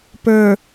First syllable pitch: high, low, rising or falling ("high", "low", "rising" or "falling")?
low